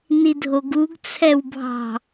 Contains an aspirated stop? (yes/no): yes